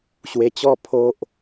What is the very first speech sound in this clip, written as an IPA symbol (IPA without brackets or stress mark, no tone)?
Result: ɕ